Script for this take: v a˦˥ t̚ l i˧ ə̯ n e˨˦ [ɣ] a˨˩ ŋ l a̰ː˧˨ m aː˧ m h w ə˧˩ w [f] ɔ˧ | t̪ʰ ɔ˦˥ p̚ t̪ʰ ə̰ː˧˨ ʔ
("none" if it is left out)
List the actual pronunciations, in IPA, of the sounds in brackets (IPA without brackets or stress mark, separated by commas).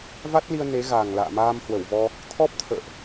ɣ, v